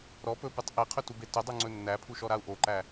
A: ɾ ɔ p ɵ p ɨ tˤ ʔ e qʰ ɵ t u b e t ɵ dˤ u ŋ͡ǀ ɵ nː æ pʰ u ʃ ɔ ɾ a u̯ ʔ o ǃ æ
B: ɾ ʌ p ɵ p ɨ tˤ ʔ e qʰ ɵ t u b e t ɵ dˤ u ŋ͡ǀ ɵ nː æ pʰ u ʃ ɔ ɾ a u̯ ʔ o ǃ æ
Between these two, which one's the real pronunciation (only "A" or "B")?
A